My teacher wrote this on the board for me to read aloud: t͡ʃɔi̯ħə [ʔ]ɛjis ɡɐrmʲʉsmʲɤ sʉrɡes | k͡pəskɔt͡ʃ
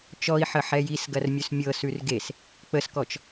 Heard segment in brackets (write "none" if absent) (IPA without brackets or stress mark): ħ